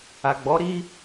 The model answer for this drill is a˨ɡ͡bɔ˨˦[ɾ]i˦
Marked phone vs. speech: correct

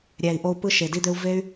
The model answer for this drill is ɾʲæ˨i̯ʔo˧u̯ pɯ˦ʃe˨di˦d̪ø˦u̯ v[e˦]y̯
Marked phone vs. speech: correct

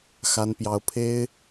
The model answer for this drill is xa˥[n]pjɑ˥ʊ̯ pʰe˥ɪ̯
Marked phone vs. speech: correct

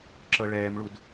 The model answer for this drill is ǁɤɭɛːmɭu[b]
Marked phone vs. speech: incorrect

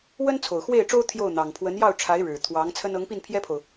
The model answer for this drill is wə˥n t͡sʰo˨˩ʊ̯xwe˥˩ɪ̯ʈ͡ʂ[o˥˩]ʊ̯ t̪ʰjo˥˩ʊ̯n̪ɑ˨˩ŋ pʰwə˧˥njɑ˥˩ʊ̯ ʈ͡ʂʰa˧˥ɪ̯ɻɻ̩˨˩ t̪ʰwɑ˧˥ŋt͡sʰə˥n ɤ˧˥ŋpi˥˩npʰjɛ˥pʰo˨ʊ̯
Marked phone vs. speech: incorrect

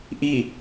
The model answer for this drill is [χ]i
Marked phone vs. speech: incorrect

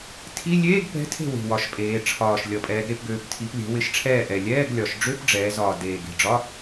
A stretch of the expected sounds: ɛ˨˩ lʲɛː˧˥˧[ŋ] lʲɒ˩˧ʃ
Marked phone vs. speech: incorrect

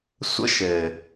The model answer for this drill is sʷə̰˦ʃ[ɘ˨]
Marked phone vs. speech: correct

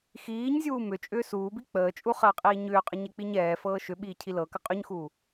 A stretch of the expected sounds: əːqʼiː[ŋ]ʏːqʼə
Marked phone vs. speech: incorrect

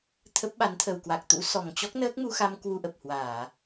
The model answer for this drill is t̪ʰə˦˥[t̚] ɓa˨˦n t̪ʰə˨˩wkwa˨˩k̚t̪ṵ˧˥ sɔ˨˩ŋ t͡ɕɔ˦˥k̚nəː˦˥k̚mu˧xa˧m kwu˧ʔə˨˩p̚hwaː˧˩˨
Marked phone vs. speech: incorrect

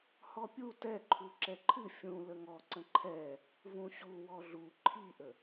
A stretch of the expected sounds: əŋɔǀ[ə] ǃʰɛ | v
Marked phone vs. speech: incorrect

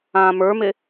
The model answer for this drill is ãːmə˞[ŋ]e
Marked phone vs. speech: incorrect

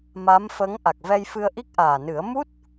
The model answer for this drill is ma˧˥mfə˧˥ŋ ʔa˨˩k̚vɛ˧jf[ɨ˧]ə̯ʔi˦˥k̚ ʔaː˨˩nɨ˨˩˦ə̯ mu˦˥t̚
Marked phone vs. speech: correct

